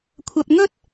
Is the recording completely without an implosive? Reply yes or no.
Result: yes